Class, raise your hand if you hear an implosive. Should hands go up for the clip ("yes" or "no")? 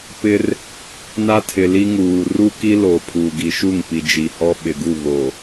yes